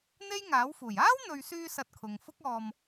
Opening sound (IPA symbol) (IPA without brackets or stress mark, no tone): n̪